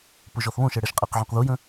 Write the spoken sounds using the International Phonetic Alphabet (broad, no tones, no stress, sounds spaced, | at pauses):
p ʊ ʒ ɔ θ β õ ʃ ɛ ɽ ɛ ʃ qʼ ɛ q ʕ õ q ð u j ə̃